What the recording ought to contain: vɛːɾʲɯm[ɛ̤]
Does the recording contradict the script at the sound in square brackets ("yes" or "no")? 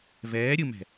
no